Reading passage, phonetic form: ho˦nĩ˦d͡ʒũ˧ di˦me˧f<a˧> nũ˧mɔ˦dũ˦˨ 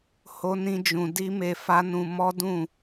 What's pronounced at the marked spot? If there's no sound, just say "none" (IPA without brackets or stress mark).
a˦